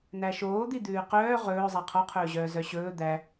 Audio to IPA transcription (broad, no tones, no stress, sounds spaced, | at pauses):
n̪ æ ʃ oː d̪ i d̪ ʉː q œː ʁ ɵː zˤ æ qʰ ɔ qʰ ɵː ʑ œː z œ ɕ ɵː d̪ æ